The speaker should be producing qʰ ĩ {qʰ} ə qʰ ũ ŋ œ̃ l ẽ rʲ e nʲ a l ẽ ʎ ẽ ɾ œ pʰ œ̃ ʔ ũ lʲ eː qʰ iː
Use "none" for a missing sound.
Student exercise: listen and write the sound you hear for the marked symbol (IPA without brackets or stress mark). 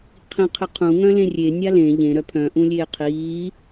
qʰ